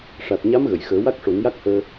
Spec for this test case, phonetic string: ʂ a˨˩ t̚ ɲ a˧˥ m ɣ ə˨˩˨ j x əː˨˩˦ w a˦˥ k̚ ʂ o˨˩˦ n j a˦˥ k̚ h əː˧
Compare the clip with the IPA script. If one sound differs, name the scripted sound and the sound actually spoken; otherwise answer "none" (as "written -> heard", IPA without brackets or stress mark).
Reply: none